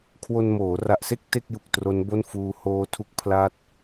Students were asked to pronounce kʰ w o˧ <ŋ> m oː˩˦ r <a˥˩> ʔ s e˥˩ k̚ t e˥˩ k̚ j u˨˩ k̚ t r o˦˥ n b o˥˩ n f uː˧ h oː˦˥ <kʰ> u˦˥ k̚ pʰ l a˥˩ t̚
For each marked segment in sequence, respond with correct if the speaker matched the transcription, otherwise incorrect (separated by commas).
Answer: incorrect, incorrect, incorrect